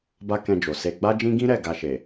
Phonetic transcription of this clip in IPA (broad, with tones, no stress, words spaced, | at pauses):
ba˦kɛ̃˧d͡ʒo˨ se˧ ɡ͡ba˦d͡ʒĩ˦ɡĩ˦ ɾɛ˦˨ ɡa˧ʃe˨